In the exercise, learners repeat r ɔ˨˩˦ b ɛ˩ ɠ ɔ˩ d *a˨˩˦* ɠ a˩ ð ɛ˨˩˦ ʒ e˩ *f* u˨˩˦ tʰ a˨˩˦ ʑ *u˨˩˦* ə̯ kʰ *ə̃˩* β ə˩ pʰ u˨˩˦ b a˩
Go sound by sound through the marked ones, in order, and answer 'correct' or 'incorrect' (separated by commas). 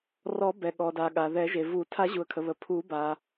incorrect, incorrect, incorrect, incorrect